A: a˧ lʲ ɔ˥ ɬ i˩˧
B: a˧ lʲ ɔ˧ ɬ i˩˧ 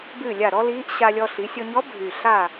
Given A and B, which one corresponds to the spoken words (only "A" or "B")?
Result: B